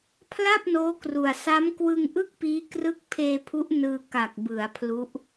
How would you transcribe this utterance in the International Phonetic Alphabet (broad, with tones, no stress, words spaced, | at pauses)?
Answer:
pʰla˥˩p̚noː˦˥kru˨˩a̯ sa˦˥mkwɯ˧ŋʔɯ˥˩k̚piː˦˥ krɯ˥˩k̚ pʰeː˧pʰu˦˥ʔ nɯː˧ ka˨˩k̚bɯ˩˦a̯ pʰlu˦˥ʔ